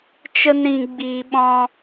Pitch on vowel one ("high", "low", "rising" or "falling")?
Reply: high